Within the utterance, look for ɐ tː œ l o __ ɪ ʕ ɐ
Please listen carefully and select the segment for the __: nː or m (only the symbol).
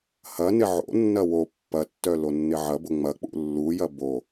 nː